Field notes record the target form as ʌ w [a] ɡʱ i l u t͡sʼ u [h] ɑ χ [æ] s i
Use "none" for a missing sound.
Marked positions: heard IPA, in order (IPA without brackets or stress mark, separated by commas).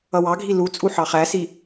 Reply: ɑ, ħ, æ